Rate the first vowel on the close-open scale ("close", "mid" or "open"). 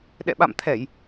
mid